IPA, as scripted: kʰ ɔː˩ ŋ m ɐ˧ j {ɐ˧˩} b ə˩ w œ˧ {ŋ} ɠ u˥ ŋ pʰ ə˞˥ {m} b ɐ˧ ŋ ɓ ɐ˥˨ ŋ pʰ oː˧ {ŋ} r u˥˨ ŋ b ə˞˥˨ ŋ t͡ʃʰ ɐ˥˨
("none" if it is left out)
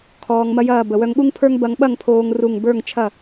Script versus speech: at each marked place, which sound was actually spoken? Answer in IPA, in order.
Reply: ɐː˧˩, ŋ, ŋ, ŋ

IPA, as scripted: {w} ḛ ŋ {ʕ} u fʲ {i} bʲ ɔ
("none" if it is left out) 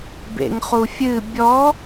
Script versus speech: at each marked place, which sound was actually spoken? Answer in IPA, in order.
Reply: b, χ, ɨ

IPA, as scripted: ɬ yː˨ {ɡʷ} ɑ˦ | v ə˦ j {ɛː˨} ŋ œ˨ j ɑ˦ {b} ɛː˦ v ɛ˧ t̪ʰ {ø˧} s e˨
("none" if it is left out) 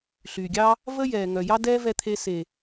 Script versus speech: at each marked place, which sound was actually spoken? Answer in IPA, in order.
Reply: ɡʲ, ɛː˨, d, e˧

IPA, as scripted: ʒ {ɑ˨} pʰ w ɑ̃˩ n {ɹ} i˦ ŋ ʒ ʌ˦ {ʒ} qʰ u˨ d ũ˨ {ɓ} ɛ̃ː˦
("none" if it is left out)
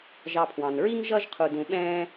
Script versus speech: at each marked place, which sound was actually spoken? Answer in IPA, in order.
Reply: ɑ˨, ɹ, ʒ, ɓ

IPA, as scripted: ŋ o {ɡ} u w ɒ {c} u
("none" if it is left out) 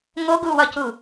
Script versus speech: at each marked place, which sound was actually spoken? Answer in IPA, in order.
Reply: ɡ, c

